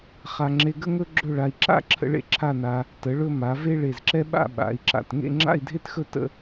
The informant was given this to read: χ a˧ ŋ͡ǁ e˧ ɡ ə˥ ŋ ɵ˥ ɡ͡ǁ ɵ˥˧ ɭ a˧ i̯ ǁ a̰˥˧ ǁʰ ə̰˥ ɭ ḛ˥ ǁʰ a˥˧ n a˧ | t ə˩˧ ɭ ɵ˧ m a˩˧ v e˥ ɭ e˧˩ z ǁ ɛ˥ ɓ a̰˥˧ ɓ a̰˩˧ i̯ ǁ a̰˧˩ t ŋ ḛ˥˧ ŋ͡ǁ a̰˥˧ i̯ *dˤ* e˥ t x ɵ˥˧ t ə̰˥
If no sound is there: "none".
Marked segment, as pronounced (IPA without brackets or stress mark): dʱ